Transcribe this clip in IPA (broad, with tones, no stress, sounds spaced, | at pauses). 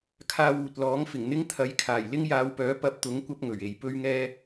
kʰ aː˧ w uː˨ t̚ l ɔː˨˥ ŋ f ɪ˨˩ ŋ n̪ ɪ˥ ŋ t̪ʰ ɐ˨˥ j kʰ aː˨˩ j l ɪ˥ ŋ j aː˨˧ w p œː˨˥ p ɐ˧ p̚ t̪ ʊ˨˥ ŋ kʷ ɐ˥ p̚ ŋ ɵ˨˩ ɥ e˨ j p ɵ˥ ɥ ŋ ɛː˥